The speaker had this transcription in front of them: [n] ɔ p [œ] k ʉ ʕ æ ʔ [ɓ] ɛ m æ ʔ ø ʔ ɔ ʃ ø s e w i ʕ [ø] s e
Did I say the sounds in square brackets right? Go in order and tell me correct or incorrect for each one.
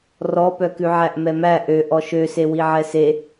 incorrect: r, correct, incorrect: m, incorrect: ɛ

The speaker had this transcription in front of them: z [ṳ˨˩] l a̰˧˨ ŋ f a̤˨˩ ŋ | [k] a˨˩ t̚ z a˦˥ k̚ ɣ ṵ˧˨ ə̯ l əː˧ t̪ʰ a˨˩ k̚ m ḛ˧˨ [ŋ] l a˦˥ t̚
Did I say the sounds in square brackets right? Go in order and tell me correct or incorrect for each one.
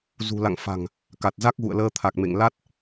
correct, correct, correct

